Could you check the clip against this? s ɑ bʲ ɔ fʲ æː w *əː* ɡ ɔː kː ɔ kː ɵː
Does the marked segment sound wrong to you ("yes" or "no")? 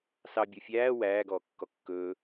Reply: yes